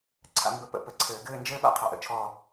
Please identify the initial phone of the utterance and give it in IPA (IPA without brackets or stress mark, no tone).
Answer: ǀʰ